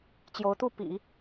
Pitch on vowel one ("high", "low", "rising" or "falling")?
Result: rising